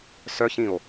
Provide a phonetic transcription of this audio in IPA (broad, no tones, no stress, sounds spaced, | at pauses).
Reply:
s œ ç ĩ o̯